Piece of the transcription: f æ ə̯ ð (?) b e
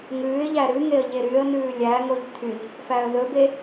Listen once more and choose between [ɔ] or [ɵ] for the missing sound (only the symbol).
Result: ɵ